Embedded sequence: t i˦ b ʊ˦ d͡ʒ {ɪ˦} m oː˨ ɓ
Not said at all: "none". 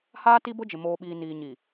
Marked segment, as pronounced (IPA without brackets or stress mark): ɪ˨